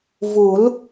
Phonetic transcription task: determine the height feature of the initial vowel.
high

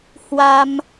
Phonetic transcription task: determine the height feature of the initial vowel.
low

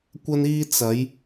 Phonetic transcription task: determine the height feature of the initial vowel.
low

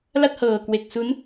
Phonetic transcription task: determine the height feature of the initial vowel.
low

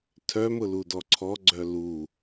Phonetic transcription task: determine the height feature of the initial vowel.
mid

